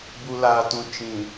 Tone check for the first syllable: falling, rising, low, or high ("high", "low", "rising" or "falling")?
low